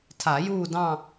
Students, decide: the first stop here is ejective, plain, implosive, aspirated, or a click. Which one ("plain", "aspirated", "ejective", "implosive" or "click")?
aspirated